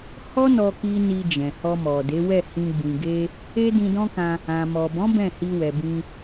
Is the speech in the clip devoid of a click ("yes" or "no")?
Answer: yes